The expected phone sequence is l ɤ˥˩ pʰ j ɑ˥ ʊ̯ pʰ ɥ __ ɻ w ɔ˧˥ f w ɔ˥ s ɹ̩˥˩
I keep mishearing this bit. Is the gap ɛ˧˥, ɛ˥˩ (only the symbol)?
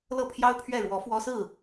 ɛ˥˩